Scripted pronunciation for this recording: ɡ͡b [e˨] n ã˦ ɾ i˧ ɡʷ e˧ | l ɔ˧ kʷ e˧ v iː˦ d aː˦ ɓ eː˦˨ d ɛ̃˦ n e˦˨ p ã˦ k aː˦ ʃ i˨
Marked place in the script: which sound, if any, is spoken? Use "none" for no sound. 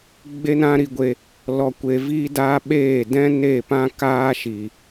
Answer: e˦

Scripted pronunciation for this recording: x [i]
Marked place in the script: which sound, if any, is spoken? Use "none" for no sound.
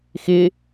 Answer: ɪ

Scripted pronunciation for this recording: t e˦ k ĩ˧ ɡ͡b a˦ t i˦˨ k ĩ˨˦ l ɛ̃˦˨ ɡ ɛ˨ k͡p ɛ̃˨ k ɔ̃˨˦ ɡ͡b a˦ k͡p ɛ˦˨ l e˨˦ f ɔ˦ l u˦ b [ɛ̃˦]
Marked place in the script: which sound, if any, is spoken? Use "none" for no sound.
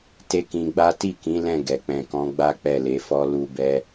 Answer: ɛ˦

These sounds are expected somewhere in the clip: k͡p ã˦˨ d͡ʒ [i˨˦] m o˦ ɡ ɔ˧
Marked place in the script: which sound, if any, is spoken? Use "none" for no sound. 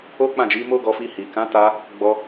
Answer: i˨˦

